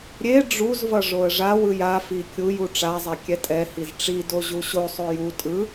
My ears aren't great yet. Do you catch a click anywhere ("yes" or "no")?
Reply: no